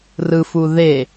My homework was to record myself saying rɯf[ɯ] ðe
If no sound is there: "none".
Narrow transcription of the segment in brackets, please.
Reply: u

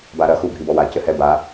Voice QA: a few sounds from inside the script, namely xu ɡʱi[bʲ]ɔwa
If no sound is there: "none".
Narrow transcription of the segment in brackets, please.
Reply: b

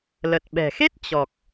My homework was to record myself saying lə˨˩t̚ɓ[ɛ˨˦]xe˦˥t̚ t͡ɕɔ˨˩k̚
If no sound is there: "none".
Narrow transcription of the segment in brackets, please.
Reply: ɛ̤˨˩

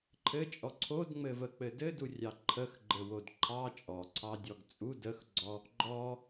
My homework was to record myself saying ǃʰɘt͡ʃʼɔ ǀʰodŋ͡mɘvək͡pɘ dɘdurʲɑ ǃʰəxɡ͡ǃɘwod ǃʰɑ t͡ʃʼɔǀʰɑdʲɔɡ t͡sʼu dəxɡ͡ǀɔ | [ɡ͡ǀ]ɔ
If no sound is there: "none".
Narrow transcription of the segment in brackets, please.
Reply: ɡ͡ǃ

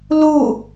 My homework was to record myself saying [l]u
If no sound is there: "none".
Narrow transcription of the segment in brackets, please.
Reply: l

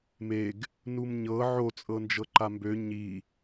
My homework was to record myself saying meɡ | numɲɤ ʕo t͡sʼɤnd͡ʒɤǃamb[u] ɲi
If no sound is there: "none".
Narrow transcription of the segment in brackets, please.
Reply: ø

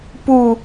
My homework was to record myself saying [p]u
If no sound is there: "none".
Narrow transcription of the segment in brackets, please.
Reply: p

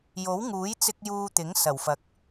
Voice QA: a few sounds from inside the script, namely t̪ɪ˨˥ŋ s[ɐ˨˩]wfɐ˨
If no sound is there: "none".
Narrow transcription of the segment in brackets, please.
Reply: ɐ˨˩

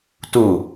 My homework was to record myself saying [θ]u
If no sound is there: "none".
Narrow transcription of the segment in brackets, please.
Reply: t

